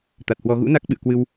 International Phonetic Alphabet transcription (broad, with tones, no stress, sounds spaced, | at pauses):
t̪ a˨˩ t̚ h w ɔ˧ ɣ ṵ˧˥ n a˦˥ k̚ ɓ ɨ̰˧˨ ə̯ k w ɨ˧ w